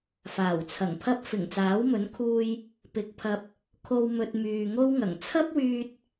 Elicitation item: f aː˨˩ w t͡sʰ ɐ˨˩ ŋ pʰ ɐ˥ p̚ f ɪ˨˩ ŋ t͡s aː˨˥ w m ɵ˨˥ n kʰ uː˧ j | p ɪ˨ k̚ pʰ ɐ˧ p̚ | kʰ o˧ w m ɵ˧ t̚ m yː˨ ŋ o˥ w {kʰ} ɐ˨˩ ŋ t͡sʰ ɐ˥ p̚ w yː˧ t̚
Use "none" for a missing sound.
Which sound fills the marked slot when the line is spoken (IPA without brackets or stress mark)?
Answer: ŋ